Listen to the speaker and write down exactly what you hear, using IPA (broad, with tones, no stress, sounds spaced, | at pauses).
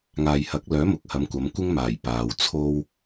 ŋ aː˨ j h ɐ˨˥ k̚ l œː˨˥ m ʊ˨˥ k̚ h ɐ˨˧ m kʷ ɐ˨˧ m kʷ ɪ˥ ŋ m aː˨˩ j p aː˨ w t͡sʰ o˥ w